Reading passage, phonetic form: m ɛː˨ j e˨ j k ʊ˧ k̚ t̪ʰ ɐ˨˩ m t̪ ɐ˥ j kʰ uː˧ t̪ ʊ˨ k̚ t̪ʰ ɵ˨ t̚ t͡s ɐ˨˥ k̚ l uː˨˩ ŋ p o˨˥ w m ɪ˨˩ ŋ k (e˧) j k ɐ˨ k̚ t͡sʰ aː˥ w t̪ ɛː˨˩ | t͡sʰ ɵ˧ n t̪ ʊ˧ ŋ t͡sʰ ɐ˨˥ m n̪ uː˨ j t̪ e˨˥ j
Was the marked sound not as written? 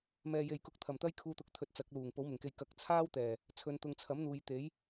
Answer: no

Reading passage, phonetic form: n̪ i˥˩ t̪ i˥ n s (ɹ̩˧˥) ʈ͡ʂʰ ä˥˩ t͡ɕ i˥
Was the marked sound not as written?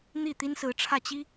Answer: no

